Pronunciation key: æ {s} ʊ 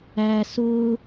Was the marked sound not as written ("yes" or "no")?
no